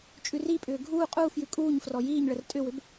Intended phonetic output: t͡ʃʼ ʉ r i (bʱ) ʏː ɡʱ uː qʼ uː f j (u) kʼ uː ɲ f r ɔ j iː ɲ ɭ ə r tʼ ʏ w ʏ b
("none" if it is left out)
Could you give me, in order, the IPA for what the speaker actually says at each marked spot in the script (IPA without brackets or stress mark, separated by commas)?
pʼ, ʉ